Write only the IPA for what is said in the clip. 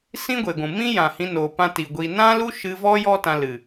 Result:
s ĩ˦ ɡʷ e˨ ɡʷ ũ˨ m ĩ˦ j ã˨ h ĩ˧ n oː˨ p ã˧ t i˨ ɡʷ i˧ n ã˦ l u˦ ʃ ɨ˧ v ɔ˦ j ɔ˦ t ã˧ l ɨ˨

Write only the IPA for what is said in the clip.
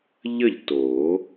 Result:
ʎ ə˥˨ ʎ t oː˨˩˦

